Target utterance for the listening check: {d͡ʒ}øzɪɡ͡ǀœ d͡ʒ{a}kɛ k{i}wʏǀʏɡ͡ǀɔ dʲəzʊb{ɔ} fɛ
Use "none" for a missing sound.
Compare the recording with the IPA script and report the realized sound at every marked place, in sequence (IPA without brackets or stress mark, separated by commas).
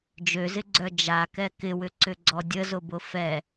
d͡ʒ, a, ɪ, ʊ